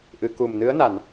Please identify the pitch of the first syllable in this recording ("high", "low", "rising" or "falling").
low